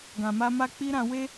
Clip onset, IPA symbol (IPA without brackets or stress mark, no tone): ɡ